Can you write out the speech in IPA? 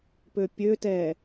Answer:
pøpʲøtɛ

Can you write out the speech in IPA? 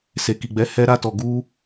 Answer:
se˨ki˨ɡ͡bɛ˨˦ hɛ˧ɾa˧ tɔ˨ɡu˧

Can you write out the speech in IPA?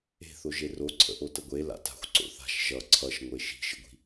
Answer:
e̤θo ʒeroǀʰə̰ ʔotəɡʷe la̰ta̤xʷ ǀo̰θa̤ʃ ʒʌ ǀʰʌʃŋʷe ʃi̤ʃə̰ɡʷi̤

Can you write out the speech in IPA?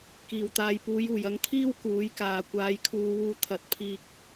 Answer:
kiː˨˩w t̪aː˨jpuː˨˧juː˨˩j ɐ˧ŋt̪ʰiː˥w kuː˨˥jkaː˨ kʷaː˨˧jkʰuː˧wuː˧ t̪ʰɐ˨˥t̚pʰiː˧k̚

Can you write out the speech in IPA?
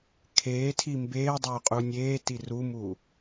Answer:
kʰeːtʰi mbeːdˤɵː qʼunʲeːti rumuː

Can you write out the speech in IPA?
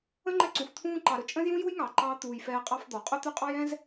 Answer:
ə̃˥ŋ͡ǃɛ˦ǀũ˩f t̪ʰũː˦ ǃɑ˨ɾɵ˦ t͡ʃʼə̃˥zjũ˥ju˥jŋɑ˩ ǃɑ˥ t̪uː˨j fɛː˦qʼɑ˥fd̪ɔ˩ qʼœ˥t̪ɵ˦qʼɑ˥jɛ̃˥z

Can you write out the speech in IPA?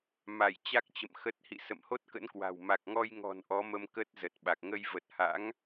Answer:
ma˧˩j t͡ɕa˦˥k̚t͡ɕə̰˧˨m xə˨˩t̚hḭ˧˨ sə̰˧˨mho˦˥t̚kə̰˧˥nkwa̤˨˩w ma˨˩k̚ŋɔ˧jŋɔ̤˨˩n ʔɔ˨˦mə˧m kə˦˥t̚zə˨˩t̚ɓa˨˩k̚ ŋə˧jvə˨˩t̚ha̰˧˥ŋ

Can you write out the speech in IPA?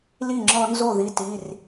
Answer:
li˥˩ŋ͡ǁɔ˦nzo˥˩ði˨˦ ti˩˧˩r

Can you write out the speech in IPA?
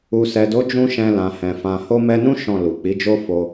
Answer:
u˨sɛ˨do˨˦ d͡ʒũ˦ʃɛ̃˧lã˨hɛ̃˨ fã˧ ho˧mɛ˧nũ˦ ʃɔ̃˦˨lu˨ k͡pi˨˦d͡ʒo˦ fo˧

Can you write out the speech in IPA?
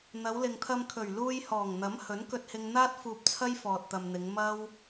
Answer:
n̪ɐ˨˧wlɪ˨ŋt̪ʰɐ˧m kʰɵ˨˩ɥluː˧jhɔː˨˩ŋn̪ɐ˨˥m hɵ˨˥nkɵ˧t̚hɪ˧ŋn̪aː˥t̚ fuː˧p̚t͡sʰɐ˥j fɔː˨t̚t̪ɐ˨mn̪ɪ˨˧ŋ mɐ˥w

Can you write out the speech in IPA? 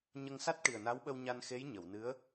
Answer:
ɲə˧ŋsa˦˥t̚ ʈi˨˩ə̯na˧˥wɓə˧w ɲa˧nxe˧˥j ɲə˨˩˨wnɨ˧˥ə̯

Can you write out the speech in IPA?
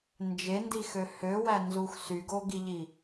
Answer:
nd͡ʒendixø høwænzux syɡoɡiʎi

